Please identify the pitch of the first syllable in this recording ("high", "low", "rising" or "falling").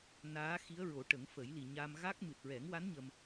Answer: rising